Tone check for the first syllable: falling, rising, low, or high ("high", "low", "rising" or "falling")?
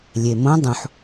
low